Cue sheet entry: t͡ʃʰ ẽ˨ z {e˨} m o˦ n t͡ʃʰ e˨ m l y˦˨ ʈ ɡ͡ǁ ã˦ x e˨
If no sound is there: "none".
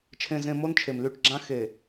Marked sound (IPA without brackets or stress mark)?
ẽ˨